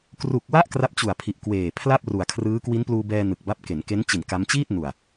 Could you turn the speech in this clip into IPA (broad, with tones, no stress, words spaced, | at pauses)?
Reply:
kru˨˩k̚wa˥˩ʔ kra˦˥p̚ t͡ɕu˨˩a̯pʰi˨˩ʔkweː˨˩ pʰla˥˩p̚ru˩˦a̯kʰrɯː˦˥ kwi˦˥npluː˧bɛː˧ nɯ˨˩k̚ba˦˥p̚ ke˩˦nke˦˥n t͡ɕi˨˩n ka˦˥m t͡ɕiː˥˩t̚ nu˨˩a̯